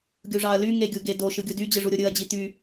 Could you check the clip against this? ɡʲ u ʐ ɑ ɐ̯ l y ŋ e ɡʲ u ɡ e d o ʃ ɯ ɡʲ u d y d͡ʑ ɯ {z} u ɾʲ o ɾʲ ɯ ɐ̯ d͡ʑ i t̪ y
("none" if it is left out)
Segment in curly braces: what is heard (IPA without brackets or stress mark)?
ʐ